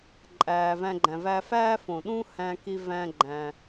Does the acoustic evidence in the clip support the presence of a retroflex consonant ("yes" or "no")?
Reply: no